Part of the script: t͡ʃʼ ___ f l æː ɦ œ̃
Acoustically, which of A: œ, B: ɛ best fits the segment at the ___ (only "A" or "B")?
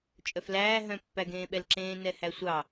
A